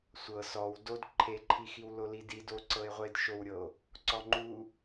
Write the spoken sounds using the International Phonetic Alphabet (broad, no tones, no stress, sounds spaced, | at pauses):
sʷ ɤ s ɔ w d o d ǃʰ e ǃʰ i x i w l o l i d i d o ǀ ɤ e̯ ʁʷ e d ʃ o w ɾʲ ɤ o̯ | ǀ ɔ ŋ͡ǃ u